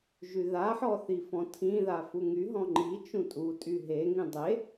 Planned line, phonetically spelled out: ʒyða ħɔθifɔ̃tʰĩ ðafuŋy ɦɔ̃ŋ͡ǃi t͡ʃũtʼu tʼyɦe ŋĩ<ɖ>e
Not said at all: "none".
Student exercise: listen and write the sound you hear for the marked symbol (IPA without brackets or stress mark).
dˤ